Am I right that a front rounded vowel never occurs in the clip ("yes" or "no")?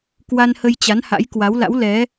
yes